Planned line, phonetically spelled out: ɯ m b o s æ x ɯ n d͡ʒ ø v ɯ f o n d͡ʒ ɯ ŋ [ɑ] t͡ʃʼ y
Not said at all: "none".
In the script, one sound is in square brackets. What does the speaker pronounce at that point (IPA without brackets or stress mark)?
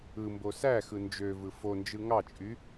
ɑ